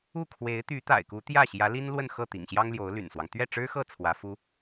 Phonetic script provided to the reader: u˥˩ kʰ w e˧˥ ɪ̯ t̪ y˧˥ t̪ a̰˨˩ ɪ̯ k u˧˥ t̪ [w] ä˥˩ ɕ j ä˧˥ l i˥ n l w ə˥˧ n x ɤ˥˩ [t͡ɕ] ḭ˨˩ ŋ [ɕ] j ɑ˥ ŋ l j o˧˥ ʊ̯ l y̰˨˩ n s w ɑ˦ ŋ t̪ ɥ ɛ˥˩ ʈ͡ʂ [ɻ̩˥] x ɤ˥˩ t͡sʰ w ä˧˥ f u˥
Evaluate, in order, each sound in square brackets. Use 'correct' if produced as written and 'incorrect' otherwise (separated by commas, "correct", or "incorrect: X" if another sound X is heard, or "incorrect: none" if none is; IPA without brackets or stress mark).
incorrect: j, incorrect: t̪, correct, correct